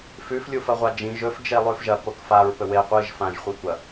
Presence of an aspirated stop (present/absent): absent